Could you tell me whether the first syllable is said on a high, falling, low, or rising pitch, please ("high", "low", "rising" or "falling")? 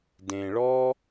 low